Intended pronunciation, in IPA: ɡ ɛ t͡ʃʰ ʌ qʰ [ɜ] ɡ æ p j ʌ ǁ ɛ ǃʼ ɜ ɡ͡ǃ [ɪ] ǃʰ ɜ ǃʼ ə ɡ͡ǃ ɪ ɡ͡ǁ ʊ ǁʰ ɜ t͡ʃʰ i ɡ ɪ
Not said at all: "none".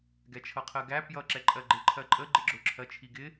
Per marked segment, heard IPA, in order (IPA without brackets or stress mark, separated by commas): ɜ, ɪ